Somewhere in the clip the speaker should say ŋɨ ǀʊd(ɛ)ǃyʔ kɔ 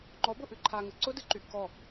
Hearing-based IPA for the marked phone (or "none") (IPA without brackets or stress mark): ɨ